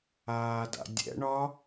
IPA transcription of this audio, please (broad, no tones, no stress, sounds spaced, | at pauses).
aː d a̰ dʲ ɛ̰ ɳ ɒ